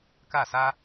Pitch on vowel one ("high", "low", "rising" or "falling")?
falling